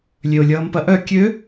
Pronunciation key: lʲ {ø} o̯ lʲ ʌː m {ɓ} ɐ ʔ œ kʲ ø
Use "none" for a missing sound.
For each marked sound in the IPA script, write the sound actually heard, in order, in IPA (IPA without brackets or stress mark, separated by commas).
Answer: ø, p